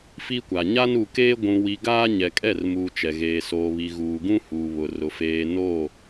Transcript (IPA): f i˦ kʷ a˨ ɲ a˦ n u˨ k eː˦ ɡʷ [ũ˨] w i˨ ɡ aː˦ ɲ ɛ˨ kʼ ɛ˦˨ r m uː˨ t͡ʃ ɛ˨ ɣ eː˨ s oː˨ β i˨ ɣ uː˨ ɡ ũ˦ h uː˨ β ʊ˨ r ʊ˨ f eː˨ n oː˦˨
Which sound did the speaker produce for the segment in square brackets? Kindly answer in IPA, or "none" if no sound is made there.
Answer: ũ˨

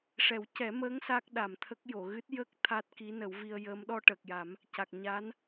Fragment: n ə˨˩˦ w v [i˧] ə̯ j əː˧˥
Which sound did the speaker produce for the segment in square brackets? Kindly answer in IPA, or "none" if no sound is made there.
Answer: i˧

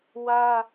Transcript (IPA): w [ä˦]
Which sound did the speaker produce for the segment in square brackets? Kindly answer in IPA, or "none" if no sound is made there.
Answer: ä˦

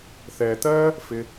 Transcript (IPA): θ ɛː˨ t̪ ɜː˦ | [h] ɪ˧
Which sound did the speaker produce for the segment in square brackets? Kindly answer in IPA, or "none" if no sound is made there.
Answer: f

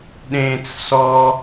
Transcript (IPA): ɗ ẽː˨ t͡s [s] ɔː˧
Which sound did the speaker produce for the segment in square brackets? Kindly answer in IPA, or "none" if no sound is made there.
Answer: s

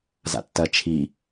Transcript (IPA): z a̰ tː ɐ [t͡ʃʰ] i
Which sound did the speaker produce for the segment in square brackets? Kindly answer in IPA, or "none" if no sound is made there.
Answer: t͡ʃʰ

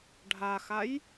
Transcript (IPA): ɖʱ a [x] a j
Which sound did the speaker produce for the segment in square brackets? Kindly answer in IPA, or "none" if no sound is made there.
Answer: x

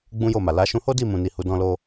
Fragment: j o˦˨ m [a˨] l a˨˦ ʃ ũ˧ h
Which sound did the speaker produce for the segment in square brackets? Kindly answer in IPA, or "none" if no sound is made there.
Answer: a˨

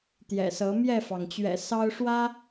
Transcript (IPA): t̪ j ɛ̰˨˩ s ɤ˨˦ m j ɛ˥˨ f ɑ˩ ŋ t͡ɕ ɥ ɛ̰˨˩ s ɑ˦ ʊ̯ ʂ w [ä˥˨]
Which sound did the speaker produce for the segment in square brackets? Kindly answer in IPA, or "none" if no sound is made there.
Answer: ä˦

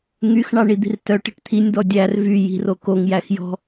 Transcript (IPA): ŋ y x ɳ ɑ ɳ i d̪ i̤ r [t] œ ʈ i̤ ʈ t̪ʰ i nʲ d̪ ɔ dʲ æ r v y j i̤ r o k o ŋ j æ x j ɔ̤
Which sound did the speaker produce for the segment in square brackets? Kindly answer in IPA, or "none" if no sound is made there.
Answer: t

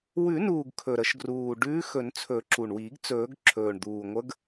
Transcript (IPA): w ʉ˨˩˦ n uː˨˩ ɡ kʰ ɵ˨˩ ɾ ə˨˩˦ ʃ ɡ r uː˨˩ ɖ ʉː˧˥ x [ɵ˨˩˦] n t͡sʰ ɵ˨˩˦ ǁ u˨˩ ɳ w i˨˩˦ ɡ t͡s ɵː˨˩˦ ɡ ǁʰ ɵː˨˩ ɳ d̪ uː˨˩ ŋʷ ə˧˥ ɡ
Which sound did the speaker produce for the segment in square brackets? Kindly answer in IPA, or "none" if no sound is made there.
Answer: ɵ˨˩˦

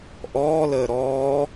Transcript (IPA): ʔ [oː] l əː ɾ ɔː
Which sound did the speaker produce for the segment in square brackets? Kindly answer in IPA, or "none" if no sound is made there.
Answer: ɔː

